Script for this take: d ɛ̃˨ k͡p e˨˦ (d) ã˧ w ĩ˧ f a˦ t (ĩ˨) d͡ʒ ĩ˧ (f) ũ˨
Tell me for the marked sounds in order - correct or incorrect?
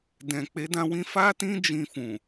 correct, incorrect, correct

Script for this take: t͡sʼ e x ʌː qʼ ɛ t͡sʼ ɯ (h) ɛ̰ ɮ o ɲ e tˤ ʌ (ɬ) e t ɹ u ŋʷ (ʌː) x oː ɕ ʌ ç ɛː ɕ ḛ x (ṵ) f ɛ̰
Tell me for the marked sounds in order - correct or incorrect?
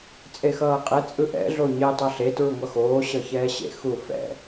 incorrect, correct, incorrect, incorrect

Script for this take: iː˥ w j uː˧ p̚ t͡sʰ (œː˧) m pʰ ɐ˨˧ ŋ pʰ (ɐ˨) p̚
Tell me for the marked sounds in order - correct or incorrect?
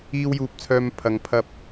correct, incorrect

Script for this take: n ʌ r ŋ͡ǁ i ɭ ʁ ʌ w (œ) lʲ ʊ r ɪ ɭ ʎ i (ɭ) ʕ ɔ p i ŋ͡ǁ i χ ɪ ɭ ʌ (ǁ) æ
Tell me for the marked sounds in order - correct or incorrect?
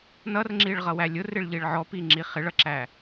incorrect, correct, correct

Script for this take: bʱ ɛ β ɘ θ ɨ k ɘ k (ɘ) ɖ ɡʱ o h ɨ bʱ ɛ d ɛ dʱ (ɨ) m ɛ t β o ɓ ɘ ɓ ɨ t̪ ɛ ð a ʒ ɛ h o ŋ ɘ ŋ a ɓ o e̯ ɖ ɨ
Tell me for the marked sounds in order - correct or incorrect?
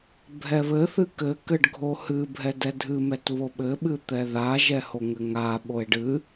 correct, correct

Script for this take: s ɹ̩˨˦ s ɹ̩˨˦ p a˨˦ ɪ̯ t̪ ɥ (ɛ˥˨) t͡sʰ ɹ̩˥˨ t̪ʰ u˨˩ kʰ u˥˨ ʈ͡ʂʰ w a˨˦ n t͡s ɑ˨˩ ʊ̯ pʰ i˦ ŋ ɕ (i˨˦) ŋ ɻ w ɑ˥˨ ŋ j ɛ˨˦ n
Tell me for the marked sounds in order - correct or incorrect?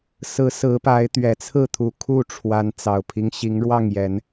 incorrect, correct

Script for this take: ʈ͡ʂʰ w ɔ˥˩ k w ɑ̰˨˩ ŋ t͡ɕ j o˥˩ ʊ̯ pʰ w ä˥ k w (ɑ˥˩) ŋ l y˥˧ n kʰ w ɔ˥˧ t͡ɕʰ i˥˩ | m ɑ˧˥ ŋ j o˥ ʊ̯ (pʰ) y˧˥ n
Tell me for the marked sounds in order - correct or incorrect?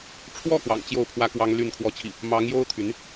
incorrect, incorrect

